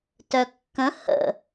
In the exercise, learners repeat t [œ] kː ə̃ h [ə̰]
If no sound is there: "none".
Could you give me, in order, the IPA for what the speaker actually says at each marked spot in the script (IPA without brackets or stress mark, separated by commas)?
œ, ə̰